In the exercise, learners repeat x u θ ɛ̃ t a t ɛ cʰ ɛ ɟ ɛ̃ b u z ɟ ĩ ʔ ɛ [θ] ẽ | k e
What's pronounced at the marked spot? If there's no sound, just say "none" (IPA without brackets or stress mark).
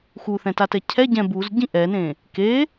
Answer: n